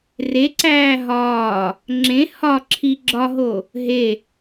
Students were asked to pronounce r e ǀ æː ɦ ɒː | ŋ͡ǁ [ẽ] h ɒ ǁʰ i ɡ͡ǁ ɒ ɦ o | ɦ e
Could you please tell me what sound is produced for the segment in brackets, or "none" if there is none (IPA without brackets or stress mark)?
ẽ